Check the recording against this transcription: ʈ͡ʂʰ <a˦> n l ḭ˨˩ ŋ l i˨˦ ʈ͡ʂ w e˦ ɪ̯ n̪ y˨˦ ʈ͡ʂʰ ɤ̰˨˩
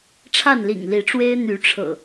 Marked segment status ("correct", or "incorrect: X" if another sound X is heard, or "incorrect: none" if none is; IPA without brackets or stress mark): incorrect: a˥˨